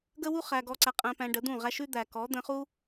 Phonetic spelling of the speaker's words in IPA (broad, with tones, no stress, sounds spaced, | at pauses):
ɡ ə˦ w u˦ χ æ˧ ɡ ɔ˧ ǀ æ˧ qʼ æ̃˧ p æ̃˧ ɖ ə˨˦ d̪ ũ˦˨ ʁ æ˦ ʃ ʉ˦ d̪ æ˨ k ɔ˨˦ d̪ ə̃˧ χ u˦